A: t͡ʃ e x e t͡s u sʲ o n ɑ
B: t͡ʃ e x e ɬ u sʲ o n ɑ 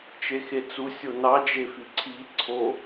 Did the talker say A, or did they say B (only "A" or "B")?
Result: A